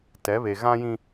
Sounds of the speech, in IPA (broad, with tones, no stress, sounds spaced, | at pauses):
t ɛ˨˦ β e˨ ɣ ã˦ j ĩ˦